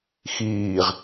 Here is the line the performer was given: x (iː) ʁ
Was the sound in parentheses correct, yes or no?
yes